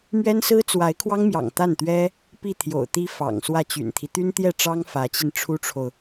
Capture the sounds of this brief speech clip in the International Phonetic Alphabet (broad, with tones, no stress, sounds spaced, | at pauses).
m ɥ ɛ˥ n s ɹ̩˥ t͡s w a˧˥ ɪ̯ kʰ w ɑ˥ ŋ m j ɑ̰˨˩ ŋ t̪ a˥˩ n t̪ ɥ ɛ˥ | p i˥˩ t̪ʰ j o̰˨˩ ʊ̯ t̪ i˥ f ɑ̰˨˩ ŋ s w ä˥˩ t͡ɕ y̰˨˩ n t̪ʰ i˦ t̪ y˥ n t̪ j ɛ˥˩ ʈ͡ʂ ɑ˥ ŋ f ä˧˥ t͡ɕ i˧ n ʈ͡ʂʰ u˥ ʈ͡ʂʰ o˨ ʊ̯